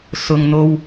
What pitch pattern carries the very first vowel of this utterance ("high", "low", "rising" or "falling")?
low